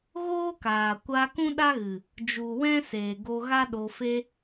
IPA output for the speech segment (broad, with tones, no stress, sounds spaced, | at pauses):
ɣ oː˦ k aː˨ kʷ a˧ k ũ˦ ɗ a˦ ɣ ɨ˨ | d͡ʒ u˨ w ɛ̃˦ s eː˨ ɡ o˧ ɣ a˦ ɗ o˧ f e˦